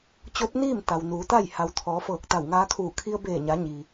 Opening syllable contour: rising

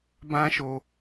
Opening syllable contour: high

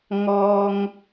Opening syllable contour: high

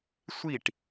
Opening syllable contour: falling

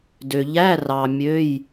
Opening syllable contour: low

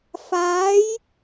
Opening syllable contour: rising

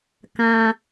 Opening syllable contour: low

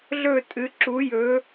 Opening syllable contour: falling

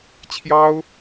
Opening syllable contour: high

